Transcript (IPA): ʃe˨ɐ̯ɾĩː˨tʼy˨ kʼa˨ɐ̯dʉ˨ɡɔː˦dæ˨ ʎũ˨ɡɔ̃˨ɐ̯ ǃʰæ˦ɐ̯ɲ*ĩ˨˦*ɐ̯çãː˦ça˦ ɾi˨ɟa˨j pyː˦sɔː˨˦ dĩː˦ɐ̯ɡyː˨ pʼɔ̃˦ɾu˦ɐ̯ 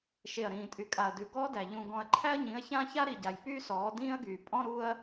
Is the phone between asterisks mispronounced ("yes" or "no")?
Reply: no